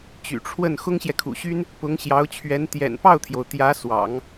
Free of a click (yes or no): yes